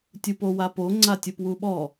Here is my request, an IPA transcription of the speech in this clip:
tʲ u p o w a p o ŋ͡ǀ a tʲ u p w u ɓ ɔ

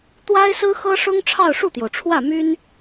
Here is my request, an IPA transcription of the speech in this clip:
t̪ w a˥ ɪ̯ s ɹ̩˥ x ɤ˥ ʂ ʊ˥ ŋ ʈ͡ʂʰ ɑ˥˧ ʊ̯ ʂ u˥˩ t̪ j o˩ ʊ̯ ʈ͡ʂʰ w ä˥˩ m y˥ n

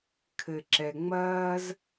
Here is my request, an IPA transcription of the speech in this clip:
kʰ ɘ˩ ǁ ɛ˩ ŋ͡m ɐː˥ z

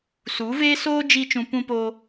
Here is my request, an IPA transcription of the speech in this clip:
s u˨˦ v eː˦ s oː˦ d͡ʒ i˧ t͡ʃ ũ˧ p ũ˧ p oː˧

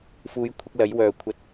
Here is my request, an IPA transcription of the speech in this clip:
f uː˨˥ j kʷʰ ɐ˧ k̚ l ɐ˨˥ j w œː˨ kʷʰ ɐ˧ t̚

